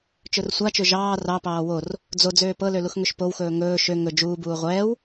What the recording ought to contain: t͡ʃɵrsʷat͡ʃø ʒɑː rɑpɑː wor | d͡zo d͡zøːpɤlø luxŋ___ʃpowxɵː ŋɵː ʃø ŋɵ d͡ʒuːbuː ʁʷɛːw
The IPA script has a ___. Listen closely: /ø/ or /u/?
ø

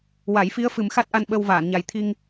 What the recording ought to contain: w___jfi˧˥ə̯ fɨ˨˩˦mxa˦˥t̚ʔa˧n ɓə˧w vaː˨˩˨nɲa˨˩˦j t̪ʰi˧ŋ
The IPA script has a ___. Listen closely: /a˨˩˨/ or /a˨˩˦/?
a˨˩˦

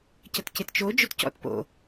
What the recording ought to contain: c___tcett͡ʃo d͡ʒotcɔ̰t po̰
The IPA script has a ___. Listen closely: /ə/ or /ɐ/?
ɐ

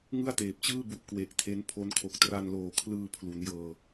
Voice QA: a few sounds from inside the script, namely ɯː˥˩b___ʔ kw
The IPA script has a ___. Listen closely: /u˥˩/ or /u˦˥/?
u˦˥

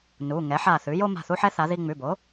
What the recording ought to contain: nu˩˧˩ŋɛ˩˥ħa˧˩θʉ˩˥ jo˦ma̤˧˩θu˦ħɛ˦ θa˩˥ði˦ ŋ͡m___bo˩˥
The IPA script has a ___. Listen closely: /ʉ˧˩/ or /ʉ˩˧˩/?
ʉ˩˧˩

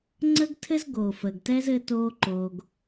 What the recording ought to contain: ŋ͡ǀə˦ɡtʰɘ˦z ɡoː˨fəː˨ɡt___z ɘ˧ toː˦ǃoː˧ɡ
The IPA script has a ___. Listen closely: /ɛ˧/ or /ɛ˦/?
ɛ˦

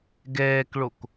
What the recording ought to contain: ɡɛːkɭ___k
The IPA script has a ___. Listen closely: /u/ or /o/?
o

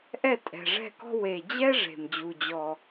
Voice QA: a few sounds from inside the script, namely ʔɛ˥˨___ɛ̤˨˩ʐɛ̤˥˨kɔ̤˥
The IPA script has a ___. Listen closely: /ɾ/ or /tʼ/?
tʼ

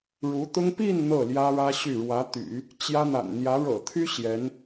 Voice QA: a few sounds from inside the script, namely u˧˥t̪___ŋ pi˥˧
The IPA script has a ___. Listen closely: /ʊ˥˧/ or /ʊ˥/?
ʊ˥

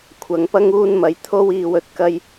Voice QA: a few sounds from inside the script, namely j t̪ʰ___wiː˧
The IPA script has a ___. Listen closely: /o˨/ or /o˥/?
o˥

